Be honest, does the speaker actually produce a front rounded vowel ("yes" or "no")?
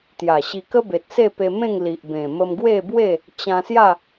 no